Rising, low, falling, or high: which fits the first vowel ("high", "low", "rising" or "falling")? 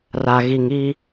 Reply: low